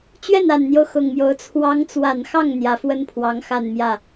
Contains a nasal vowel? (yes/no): no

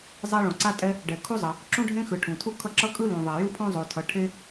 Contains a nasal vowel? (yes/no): yes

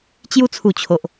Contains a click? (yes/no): no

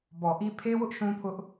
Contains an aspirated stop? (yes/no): yes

